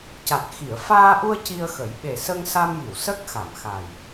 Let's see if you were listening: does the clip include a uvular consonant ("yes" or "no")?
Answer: no